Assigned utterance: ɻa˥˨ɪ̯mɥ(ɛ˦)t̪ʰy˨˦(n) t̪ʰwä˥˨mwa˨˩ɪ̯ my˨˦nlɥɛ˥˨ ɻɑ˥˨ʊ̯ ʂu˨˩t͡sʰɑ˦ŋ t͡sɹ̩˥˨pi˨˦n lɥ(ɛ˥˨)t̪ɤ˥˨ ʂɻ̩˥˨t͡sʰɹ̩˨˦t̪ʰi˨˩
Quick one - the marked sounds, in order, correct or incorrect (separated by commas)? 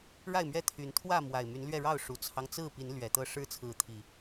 correct, correct, incorrect